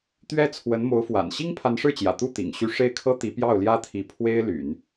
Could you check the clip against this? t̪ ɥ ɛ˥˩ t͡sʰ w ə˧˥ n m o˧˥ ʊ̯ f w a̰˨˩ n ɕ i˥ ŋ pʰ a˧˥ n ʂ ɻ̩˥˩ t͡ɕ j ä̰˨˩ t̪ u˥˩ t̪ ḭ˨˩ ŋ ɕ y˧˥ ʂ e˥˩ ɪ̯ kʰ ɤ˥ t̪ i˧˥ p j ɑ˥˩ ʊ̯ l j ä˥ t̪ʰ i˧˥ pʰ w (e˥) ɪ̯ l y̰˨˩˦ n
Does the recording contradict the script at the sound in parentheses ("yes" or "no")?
no